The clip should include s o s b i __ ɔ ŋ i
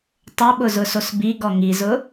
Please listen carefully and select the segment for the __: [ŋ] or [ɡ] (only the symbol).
ɡ